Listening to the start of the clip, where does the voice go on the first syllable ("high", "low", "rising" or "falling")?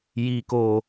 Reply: low